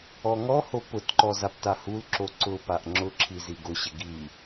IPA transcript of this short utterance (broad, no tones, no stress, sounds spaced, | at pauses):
ɔ ŋ ɔ h o p ʊ t ǃ ɔ z a p t a h u l ǁ o ǀ ʊ p a ʔ ŋ͡ǁ ʊ ǁʰ i z i ɡ ʊ ɕ ɪ ɡ i